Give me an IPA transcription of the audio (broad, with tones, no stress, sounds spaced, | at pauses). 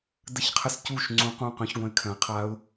d ə˦˨ ç qʰ ə˦˥ s c u˦˨ ʃ ŋ͡ǀ ũ˦˥ q ũ˦˨ q œ̃˦˥ ç ɡʷ œ̃˨˥ ɪ̯ kʰ œ̃˩˧ ə̯ qʰ a˦˥ ʊ̯